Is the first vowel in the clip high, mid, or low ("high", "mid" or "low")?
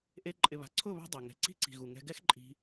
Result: mid